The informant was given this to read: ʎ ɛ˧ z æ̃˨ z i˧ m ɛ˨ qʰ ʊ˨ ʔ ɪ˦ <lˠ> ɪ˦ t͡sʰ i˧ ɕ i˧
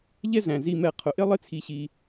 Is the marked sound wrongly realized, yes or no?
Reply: no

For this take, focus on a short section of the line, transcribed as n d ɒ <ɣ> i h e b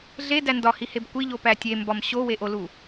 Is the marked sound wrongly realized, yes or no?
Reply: yes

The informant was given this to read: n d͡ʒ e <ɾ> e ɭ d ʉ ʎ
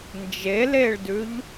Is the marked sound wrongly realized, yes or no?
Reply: yes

